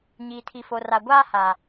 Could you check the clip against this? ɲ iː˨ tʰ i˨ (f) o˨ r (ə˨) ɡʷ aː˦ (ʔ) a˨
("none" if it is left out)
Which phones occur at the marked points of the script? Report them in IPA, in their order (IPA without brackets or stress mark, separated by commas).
f, a˨, h